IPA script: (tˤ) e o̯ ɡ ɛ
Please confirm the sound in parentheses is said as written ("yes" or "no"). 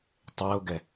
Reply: yes